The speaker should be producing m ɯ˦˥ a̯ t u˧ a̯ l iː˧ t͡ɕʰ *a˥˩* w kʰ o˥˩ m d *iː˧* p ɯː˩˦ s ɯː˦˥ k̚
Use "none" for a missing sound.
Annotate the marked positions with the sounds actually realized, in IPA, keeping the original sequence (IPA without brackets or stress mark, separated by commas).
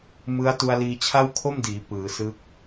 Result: a˥˩, iː˩˦